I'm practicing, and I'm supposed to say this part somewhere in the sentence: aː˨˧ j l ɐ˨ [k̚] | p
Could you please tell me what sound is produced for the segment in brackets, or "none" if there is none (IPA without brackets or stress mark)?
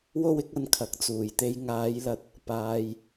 t̚